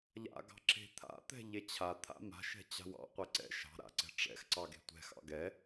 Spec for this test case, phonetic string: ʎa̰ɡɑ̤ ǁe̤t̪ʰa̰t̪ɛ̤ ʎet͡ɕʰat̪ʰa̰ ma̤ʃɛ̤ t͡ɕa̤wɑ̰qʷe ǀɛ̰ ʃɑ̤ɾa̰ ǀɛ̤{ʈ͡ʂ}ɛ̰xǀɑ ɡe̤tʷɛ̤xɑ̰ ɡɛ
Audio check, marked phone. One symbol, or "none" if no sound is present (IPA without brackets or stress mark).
ʈ͡ʂ